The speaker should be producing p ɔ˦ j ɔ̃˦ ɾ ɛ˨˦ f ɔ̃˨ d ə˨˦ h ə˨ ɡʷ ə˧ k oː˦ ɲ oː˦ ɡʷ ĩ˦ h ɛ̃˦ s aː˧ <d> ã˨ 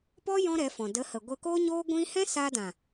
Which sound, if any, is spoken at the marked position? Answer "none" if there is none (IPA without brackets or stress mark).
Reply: d